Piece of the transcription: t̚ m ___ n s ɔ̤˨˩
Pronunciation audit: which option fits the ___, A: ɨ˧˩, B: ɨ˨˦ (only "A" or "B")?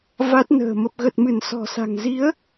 A